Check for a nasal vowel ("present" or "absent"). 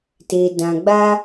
present